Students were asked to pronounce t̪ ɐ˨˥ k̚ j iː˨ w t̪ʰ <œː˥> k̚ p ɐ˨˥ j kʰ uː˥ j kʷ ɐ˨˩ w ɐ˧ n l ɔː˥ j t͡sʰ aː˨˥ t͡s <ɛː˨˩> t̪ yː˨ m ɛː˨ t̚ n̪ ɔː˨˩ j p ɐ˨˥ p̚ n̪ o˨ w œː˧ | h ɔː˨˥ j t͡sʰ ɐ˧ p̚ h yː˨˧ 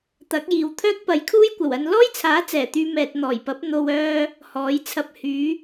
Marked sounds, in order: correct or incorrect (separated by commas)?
correct, correct